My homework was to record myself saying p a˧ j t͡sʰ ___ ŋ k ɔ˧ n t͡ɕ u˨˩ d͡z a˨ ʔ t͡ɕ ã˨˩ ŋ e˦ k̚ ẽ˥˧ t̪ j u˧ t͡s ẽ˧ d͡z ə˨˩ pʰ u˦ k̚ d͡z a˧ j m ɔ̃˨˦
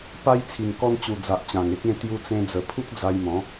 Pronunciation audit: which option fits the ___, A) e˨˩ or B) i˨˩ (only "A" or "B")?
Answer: B